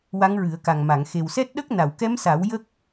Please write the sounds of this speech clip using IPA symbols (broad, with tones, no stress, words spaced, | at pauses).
wa˧˥ŋɹɨ˨˩˦ə̯ka˨˩ŋma˨˩˨ŋ xe˨˩wsɛ˦˥t̚ɗə˦˥k̚ na˨˩˨wkɛ˧˥msa˨˩˦w jə˦˥k̚